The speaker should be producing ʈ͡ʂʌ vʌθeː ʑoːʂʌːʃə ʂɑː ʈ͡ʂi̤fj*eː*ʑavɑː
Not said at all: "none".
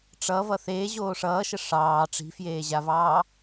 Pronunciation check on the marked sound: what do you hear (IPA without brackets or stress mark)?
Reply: eː